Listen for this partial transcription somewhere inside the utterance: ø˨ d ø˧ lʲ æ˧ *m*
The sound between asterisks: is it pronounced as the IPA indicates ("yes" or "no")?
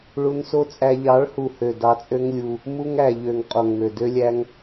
no